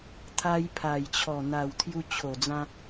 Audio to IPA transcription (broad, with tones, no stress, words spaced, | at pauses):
t̪ʰa˧j pʰa˨˩jt͡ɕʰɔ˨˩ n̪a˨˩w t̪ʰju˧t͡ɕʰo˨˩d͡zã˧